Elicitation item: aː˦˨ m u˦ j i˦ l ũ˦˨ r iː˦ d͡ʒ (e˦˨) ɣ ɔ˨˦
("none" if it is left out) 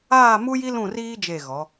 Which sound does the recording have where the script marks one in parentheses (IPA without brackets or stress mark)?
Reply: e˦˨